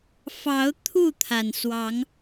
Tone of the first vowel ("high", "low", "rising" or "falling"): rising